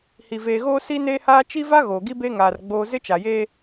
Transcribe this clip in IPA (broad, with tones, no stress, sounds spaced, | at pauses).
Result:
h i˨ v eː˨ ɣ oː˦ s i˦ n eː˦ h aː˦ t͡ʃ i˦ v a˦ ɣ oː˨ ɡ i˦ b e˦ ŋ aː˨ r ɡ͡b oː˦ z ɪ˦ t͡ʃ a˨ j eː˦